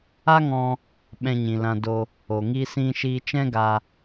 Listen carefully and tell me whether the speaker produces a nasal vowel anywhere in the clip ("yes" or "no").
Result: yes